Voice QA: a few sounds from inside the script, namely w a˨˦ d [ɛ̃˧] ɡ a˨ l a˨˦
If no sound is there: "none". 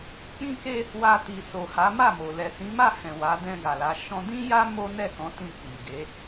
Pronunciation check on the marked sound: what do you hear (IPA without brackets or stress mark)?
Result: ɛ̃˧